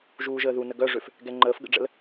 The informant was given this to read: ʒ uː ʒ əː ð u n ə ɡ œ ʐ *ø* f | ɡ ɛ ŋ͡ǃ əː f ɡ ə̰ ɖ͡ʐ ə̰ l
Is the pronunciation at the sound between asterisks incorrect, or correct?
correct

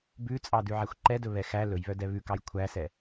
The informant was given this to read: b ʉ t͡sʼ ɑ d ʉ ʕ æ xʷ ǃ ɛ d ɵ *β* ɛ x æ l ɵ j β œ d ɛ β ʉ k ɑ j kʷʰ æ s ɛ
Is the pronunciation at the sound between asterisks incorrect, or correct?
correct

